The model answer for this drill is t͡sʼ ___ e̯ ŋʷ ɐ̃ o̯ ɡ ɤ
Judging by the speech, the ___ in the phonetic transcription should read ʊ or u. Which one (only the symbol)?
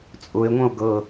ʊ